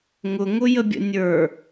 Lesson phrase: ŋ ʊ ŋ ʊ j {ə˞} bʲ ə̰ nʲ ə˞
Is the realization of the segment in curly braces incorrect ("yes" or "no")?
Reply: yes